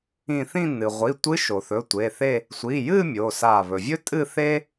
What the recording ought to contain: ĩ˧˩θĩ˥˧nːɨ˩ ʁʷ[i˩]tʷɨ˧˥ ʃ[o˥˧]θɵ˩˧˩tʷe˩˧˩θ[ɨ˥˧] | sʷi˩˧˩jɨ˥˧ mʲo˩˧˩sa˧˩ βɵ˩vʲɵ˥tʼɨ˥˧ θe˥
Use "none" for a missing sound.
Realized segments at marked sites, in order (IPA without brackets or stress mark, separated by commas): i˩˧˩, o˩, e˥˧